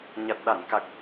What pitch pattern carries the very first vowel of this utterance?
low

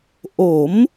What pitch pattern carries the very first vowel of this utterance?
rising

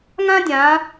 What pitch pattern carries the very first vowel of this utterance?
high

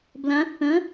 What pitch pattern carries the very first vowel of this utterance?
rising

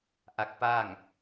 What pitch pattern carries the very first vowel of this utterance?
rising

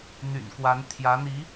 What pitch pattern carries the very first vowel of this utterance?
low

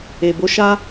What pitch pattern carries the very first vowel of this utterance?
low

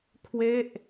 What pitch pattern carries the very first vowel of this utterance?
falling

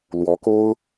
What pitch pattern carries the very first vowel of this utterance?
rising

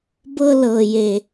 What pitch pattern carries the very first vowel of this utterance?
high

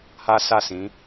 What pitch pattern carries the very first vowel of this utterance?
high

